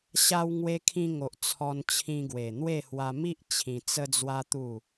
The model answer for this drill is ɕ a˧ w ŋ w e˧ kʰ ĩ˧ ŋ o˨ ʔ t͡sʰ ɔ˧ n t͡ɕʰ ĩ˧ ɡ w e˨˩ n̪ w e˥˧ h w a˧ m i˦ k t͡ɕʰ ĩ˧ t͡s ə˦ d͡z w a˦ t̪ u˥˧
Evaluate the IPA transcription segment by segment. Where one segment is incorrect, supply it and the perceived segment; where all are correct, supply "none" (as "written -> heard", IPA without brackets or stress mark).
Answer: k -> ʔ